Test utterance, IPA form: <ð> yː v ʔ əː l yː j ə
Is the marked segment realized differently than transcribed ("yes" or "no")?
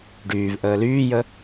yes